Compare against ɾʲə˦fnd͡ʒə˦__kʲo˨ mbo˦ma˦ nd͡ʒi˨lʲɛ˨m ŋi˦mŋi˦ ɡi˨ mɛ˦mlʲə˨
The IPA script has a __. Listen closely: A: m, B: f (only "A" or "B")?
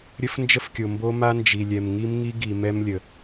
B